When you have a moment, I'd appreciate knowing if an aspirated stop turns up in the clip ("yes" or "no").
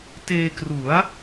no